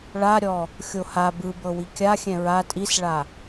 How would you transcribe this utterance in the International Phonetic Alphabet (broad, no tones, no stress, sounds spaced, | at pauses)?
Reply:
ɭ a ɾʲ ɔ | xʲ o h a b ɯ b ɤ w i kʲ a xʲ ɛ̃ ɹ a tʼ i s ɭ a